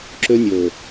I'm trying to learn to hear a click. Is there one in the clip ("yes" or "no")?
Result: yes